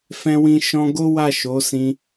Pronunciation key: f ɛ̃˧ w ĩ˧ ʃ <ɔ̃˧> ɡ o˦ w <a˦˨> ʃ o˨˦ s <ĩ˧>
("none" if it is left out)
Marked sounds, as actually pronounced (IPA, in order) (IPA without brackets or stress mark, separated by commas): ɔ̃˧, a˦˨, ĩ˧